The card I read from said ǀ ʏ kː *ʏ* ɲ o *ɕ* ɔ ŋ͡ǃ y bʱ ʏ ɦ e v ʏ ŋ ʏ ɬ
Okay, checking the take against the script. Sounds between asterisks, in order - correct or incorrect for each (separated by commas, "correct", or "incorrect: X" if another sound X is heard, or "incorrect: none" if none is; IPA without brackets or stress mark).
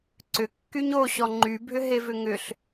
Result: incorrect: y, correct